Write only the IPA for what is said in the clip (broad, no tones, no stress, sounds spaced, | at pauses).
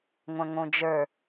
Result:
ŋʷ ɐ̃ ŋ õ d͡ʒ ə˞